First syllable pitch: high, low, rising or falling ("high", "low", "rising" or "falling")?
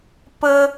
low